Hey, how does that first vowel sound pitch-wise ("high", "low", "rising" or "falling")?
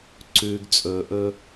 low